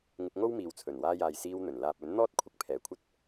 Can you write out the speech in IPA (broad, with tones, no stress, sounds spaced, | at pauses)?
ŋ ɪ˧ k̚ ŋ o˥ w m iː˨ w t͡sʰ ɵ˨˩ n w aː˧ j aː˨ j s iː˧ w n̪ ɵ˨˩ n l aː˨ p̚ ɵ˨˥ n n̪ ɔː˥ t̚ kʷʰ ɪ˧ k̚ pʰ ɛː˨ kʷʰ ɐ˥ t̚